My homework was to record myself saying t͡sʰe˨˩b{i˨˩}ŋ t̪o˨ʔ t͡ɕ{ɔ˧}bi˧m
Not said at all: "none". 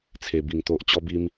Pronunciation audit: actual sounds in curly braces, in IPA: i˨˩, ɔ˧

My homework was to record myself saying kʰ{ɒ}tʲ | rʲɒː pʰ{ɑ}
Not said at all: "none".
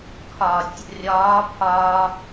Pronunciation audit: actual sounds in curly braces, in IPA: ɒ, ɒ

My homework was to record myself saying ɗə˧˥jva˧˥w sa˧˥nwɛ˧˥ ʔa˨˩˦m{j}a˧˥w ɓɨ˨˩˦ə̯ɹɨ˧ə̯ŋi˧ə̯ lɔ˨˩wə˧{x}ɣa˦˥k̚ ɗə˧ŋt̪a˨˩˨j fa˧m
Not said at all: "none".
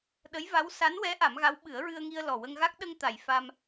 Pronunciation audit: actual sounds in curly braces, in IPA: ɣ, ŋ

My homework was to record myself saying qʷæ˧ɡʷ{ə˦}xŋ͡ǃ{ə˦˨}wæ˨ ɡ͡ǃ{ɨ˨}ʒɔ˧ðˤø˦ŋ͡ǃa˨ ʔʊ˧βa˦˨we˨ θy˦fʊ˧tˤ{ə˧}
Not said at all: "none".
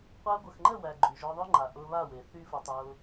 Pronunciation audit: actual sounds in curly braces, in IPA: ə˨, ə˦˨, y˨, ʊ˧

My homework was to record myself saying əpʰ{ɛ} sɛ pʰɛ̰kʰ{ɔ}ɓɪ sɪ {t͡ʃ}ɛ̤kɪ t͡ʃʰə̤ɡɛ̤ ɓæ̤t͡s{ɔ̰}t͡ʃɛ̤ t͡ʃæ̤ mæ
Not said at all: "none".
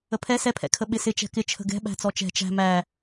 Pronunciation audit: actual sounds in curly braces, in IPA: ɛ, ə, t͡ʃ, ɔ

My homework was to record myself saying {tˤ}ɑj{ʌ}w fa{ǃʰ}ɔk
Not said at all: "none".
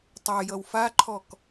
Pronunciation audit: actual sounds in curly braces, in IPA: tˤ, ʌ, ǃʰ

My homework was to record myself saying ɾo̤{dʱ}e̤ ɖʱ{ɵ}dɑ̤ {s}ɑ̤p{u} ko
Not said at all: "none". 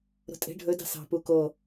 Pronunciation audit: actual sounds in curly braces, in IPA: tʼ, ɵ, s, u

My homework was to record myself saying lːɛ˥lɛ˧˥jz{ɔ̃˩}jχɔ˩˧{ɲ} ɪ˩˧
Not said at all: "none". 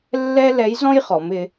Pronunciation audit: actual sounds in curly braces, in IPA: ɔ̃˥, m

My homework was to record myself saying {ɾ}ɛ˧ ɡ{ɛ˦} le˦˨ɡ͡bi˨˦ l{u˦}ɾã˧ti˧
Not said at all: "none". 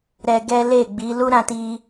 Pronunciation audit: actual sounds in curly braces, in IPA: ɾ, ɛ˦, u˦

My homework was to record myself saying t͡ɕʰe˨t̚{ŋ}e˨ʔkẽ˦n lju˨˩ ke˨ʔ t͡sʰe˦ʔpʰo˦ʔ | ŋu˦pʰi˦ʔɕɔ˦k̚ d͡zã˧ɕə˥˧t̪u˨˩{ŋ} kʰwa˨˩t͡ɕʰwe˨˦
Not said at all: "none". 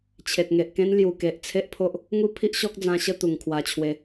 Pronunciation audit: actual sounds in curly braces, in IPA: ŋ, ŋ

